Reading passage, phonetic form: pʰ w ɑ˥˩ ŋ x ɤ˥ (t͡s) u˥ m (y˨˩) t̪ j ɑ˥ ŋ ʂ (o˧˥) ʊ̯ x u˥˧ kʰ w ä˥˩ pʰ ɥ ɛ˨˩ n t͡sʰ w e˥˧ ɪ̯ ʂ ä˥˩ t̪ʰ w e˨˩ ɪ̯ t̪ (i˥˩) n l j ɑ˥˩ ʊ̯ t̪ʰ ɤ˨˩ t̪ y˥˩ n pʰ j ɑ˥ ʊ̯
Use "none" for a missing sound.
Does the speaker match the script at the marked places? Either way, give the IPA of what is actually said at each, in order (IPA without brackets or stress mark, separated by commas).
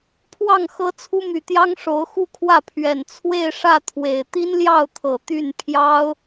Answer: t͡sʰ, y˧˥, o˧˥, i˥